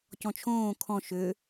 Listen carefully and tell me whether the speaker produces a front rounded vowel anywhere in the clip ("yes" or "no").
yes